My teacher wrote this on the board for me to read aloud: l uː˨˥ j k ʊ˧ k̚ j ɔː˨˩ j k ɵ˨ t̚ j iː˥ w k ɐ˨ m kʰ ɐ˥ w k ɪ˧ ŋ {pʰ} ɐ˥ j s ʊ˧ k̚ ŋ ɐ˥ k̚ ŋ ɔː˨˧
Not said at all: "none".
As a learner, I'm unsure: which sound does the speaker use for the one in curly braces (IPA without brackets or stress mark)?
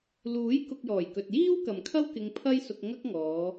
pʰ